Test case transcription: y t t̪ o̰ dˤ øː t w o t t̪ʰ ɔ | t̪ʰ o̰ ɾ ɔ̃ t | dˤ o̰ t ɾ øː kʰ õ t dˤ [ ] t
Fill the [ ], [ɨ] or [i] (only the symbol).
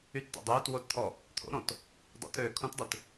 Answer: ɨ